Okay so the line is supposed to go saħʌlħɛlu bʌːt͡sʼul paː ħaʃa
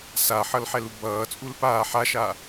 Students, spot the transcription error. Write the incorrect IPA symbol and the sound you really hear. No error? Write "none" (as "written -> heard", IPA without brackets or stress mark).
none